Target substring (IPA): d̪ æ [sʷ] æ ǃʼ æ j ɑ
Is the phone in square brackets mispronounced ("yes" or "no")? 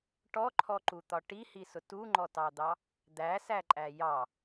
yes